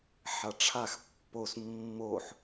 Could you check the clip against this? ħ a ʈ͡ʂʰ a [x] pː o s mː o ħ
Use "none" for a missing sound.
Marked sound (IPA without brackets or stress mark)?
x